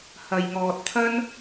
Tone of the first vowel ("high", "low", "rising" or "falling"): low